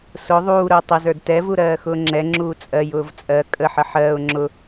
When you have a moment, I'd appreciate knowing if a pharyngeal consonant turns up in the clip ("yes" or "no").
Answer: yes